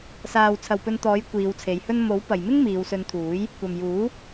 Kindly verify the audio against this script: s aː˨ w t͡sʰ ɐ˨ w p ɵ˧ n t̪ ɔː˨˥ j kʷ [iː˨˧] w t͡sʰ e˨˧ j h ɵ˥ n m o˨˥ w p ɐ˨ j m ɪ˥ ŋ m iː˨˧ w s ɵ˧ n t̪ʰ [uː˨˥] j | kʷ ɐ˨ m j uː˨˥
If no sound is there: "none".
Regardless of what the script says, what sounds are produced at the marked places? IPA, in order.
iː˨˧, uː˨˥

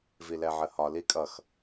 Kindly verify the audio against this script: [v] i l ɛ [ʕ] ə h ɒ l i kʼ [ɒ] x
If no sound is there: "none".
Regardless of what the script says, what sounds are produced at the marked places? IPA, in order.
v, ʕ, ʌ

